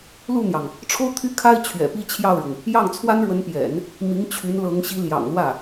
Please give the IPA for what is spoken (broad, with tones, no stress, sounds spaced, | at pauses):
l u˥˩ n̪ j ɑ˩ ŋ | ʈ͡ʂʰ o˥ ʊ̯ t̪ʰ y˥ kʰ a˥ ɪ̯ t͡ɕʰ ɥ ɛ̰˨˩ p i˥˧ t͡ɕʰ j ɑ˥˩ ʊ̯ ɻ ʊ˩ ŋ | j ɑ˥˩ ŋ t͡sʰ w a˥ n ɻ w ə˧˥ n p j ɛ̰˨˩˦ n | m i˧˥ ŋ t͡ɕʰ y˧˥ n l ɤ˧˥ ŋ ɕ i˧˥ l j ɑ̰˨˩ ŋ l w ä˥˩